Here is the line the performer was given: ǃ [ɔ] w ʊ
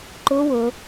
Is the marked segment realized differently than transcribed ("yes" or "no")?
yes